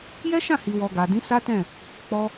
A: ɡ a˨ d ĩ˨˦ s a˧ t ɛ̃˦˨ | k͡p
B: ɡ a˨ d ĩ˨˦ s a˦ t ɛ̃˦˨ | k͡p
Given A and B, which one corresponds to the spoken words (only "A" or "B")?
B